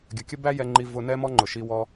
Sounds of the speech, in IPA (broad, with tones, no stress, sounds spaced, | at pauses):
ɡʲ ə˨ kʲ ə˦ b æ˦ j ɛ˧ ŋ͡ǃ i˧ v ʊ˧ n ɛ˦ m ɔ˦ ŋ͡ǃ ʊ˨ ʃ i˧ w ɔ˧